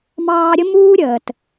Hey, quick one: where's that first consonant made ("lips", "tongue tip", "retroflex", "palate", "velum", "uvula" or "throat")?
lips